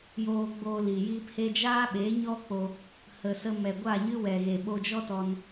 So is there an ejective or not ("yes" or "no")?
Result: no